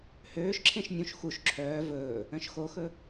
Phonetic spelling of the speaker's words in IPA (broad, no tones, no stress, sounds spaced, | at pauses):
h øː ʃ ǁʰ ẽ ʃ nʲ ũ ʃ x u ʃ ǁʰ œː v ɵː | œ̃ ʃ x o x ɵ